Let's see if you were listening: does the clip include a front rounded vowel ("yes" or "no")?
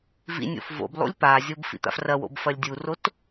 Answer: no